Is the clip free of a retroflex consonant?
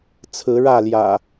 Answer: no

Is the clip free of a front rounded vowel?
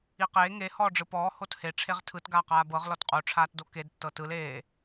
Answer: yes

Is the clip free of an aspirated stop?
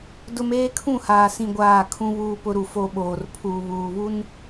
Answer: no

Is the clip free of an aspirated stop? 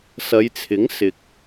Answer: no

